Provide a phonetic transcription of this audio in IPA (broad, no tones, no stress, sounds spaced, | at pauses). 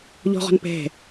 ʎ ɔ̤ ʁ ɔ̤ n p ɛ̤